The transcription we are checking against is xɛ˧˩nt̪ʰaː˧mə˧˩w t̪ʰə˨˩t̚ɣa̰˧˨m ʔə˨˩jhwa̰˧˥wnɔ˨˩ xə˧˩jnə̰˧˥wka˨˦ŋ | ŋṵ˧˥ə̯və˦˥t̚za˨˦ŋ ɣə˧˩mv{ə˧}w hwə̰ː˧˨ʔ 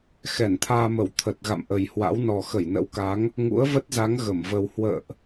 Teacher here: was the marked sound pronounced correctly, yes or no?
yes